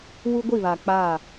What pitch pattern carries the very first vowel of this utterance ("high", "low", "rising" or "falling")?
high